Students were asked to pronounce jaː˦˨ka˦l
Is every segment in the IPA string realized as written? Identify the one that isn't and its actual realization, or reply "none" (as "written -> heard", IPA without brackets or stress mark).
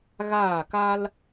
j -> ɣ